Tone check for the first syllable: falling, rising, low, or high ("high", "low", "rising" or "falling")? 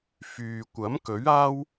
low